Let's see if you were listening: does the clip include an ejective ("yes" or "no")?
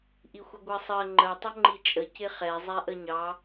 yes